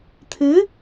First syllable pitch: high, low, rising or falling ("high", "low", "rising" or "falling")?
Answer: rising